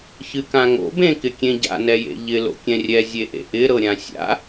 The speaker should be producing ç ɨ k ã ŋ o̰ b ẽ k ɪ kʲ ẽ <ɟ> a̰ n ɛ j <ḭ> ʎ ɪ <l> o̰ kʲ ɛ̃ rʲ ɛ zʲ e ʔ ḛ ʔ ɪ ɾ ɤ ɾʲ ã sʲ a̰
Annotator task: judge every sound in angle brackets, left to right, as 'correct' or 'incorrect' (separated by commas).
correct, incorrect, correct